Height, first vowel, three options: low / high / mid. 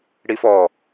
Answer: high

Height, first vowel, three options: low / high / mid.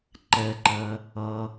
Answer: mid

